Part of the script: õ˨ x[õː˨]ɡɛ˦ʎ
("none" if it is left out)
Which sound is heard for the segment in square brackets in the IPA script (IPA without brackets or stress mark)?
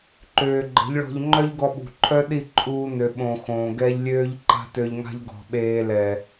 õː˨